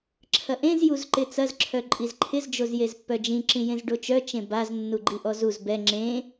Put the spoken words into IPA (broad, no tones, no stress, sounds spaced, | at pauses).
ǁʰ ɐ ʔ ẽ z j u z ǃ ɪ t͡s ɐ z ǁʰ œ ǃʼ i z ǃʰ ɪ z d͡ʒ o z j e z pː œ d͡ʒ ĩ ǁ ĩ j ẽ z ɖ o t͡ʃ œ t͡ʃ ẽ b a z nː u ɡ͡ǃ i ʔ ɔ z u z b ɛ ŋ͡ǁ ẽ